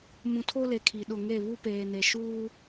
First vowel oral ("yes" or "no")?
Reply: no